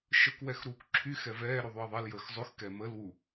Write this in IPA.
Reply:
ʃ ə k w ɛ x ɾ uː k ǁʰ y x ɛ v ɛː ɾ ʉ ðˤ y ɐ̯ ðˤ ɛ l j əː x zˤ ʉ x k ɛ m ə l w u

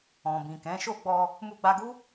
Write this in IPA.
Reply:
ɔ̃˨ b ĩ˨ k ɛ̃˨˦ ʃ o˦˨ ɡ͡b ɔ˧ | m u˧ ɡ͡b a˧ ɡ u˦

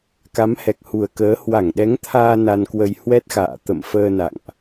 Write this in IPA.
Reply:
k a˨˦ m h ɛ˨˩ k̚ h u˨˩ ə̯ k əː˨˦ h w a˧˩ ŋ ɗ ɛ˨˦ ŋ t̪ʰ aː˧ n a˧ n k w ə˧ j h w ɛ˦˥ t̚ x a̰ː˧˨ t̪ ə̰˧˨ m f əː˧ n a̰˧˨ ŋ ʔ

